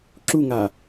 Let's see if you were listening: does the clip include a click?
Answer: yes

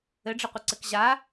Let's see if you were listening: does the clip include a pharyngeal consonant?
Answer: no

